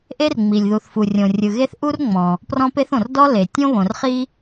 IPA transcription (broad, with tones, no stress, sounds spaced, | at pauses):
ʔ e˥ r ŋ͡m i˩ lʲ ð u˩ θ f u˩ rʲ õ˩ rʲ ɯ˩ ɣ e˥ θ ʔ u˥ r ŋ͡m ɔ̃˩ | p r ɔ̃˥ p e˥ θ õ˩ r d ɔ˥ l e˩ tʲ õ˥ β õ˩ r χ i˥